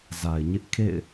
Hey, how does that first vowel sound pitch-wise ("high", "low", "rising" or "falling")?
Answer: low